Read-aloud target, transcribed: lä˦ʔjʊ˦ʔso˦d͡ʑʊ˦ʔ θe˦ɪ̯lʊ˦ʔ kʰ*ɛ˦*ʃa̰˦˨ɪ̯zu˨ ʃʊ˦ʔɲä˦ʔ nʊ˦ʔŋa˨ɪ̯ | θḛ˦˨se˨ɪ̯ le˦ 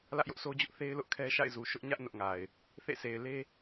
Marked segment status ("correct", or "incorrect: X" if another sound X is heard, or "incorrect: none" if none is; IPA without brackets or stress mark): correct